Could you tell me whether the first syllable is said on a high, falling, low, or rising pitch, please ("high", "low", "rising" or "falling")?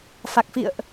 low